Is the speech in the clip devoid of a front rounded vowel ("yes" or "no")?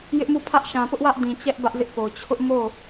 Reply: yes